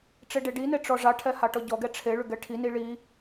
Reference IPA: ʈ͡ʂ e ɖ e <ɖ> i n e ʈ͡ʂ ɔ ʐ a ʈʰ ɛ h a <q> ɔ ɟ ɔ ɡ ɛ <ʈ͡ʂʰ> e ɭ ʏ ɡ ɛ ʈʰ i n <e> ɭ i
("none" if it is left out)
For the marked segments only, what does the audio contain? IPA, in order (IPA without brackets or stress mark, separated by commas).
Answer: ɖ, ʈ, ʈ͡ʂʰ, i